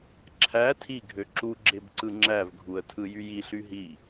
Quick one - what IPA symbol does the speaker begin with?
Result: ǁʰ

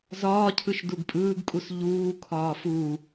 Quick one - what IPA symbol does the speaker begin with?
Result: z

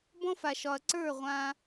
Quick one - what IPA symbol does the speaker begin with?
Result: b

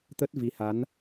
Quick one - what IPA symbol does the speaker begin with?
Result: t̪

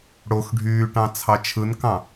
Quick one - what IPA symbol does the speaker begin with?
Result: ɽ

